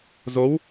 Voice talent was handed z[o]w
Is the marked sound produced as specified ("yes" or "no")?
yes